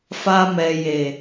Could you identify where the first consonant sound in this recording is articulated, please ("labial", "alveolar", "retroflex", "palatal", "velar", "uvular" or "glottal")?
labial